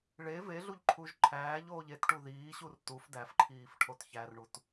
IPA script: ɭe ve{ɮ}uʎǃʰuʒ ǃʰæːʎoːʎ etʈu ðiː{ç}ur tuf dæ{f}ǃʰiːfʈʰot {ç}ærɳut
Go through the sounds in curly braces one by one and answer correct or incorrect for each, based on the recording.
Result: correct, incorrect: ɕ, correct, correct

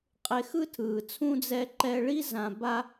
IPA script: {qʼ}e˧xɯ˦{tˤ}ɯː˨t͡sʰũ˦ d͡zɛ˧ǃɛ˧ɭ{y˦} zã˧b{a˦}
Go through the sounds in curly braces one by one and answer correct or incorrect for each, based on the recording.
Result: correct, incorrect: tʰ, incorrect: i˦, correct

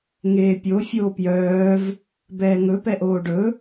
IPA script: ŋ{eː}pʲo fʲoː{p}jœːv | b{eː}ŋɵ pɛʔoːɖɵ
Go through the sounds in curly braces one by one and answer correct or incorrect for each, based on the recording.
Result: correct, correct, incorrect: ɛː

